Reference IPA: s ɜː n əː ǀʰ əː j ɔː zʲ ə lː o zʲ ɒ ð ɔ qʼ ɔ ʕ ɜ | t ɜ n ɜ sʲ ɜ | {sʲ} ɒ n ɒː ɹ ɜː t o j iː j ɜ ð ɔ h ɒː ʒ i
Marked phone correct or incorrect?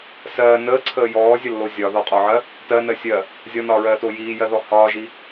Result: incorrect